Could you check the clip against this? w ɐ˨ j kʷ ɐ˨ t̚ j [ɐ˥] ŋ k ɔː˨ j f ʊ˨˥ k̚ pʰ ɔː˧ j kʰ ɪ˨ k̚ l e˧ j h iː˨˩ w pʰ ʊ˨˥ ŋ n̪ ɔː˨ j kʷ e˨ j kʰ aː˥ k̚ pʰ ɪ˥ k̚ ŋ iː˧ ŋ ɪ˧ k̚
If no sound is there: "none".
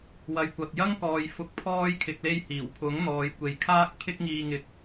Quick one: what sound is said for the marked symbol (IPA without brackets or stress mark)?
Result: ɐ˥